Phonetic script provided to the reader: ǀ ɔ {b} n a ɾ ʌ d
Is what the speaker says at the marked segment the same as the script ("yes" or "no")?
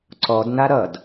no